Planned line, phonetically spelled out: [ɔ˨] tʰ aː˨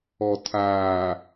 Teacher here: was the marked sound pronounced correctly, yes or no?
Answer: yes